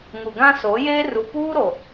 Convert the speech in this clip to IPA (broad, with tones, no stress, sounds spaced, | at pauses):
ŋ u˨ ɡ ã˦ s o˨˦ j eː˦ r u˨ p uː˦ ɾ o˨